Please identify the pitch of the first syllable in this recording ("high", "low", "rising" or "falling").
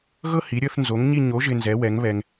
falling